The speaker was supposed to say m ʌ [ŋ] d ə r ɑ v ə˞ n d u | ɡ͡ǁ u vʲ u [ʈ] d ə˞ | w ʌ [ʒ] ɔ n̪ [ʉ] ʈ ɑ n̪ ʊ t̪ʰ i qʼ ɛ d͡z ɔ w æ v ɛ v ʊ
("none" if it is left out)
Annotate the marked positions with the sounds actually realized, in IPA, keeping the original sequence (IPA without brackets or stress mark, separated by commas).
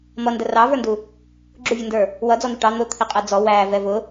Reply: n, n, d͡z, u